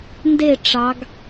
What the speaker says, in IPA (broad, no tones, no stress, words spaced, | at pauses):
nde ʈ͡ʂɑɡ